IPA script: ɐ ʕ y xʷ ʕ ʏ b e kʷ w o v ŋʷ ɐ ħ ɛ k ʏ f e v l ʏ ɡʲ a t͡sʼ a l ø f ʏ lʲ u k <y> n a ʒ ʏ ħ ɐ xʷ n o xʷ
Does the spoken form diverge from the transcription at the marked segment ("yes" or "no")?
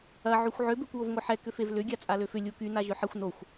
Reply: no